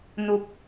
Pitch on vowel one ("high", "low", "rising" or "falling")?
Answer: low